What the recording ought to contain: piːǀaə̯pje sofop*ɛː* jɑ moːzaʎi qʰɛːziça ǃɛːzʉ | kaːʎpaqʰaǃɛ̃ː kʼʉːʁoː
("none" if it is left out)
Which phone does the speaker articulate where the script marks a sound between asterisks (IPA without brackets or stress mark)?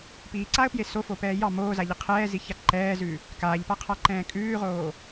ɛː